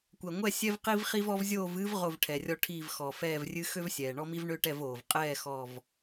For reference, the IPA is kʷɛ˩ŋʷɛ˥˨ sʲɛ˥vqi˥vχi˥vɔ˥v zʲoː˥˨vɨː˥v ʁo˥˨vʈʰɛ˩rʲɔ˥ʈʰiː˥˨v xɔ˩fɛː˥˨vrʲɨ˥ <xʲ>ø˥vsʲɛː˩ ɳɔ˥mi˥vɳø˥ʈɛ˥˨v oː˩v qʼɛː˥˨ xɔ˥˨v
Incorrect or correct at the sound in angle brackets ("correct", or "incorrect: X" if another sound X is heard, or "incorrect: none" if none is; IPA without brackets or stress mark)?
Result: incorrect: x